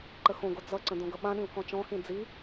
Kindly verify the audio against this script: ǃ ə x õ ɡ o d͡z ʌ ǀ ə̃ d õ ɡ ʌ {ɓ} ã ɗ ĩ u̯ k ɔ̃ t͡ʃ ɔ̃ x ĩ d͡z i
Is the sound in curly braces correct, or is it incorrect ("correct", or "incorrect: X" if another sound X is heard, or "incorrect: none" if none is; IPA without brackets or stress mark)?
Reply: correct